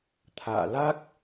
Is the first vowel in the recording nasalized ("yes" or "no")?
no